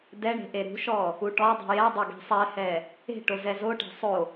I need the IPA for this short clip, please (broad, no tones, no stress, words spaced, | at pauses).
dɛɳe̤ ʔeɾṳʃɔ | uʈɔdˤṳ jɛdˤo ɡe̤sˤɛhɛ | e̤ʈo zɛzoʈe̤ sˤo